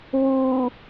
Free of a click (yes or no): yes